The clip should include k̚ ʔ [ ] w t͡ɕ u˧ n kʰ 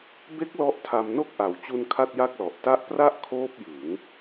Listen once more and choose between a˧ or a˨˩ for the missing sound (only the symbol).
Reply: a˨˩